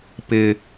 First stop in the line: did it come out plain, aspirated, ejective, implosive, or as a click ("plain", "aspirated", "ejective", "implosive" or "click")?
plain